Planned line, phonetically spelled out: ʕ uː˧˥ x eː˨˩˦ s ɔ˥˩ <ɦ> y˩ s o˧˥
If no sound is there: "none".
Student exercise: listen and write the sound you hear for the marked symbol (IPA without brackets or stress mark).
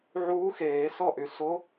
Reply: ʔ